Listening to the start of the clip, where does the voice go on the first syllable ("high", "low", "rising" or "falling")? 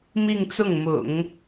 falling